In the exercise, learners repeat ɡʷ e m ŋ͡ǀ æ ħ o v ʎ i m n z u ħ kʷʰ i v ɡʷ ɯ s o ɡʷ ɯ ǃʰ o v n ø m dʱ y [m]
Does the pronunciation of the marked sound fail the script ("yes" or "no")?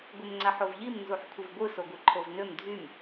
no